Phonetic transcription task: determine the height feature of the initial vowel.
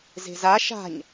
mid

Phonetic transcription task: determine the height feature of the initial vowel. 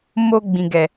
mid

